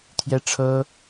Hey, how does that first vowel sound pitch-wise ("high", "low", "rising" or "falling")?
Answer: high